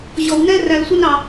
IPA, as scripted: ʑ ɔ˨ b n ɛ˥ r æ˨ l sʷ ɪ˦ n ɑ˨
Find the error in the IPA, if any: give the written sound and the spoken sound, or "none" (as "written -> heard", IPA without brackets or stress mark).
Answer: b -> w